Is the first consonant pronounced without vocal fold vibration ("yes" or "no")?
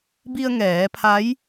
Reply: no